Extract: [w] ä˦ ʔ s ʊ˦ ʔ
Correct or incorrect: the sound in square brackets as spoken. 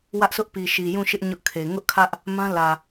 correct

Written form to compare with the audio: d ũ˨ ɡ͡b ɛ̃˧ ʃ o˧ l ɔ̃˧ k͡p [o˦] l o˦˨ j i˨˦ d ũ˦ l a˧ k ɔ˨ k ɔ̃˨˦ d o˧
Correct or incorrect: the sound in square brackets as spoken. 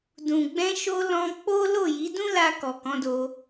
correct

